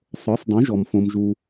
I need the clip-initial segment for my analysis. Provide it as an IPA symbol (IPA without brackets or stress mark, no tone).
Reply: sˤ